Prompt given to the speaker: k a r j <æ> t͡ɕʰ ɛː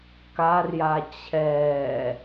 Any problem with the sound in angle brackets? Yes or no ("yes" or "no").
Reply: yes